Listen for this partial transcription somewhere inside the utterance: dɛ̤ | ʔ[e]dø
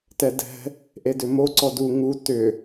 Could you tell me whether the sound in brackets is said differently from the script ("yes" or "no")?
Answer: no